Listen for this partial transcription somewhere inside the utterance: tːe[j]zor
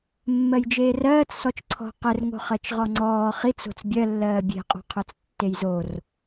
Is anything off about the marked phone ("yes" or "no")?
no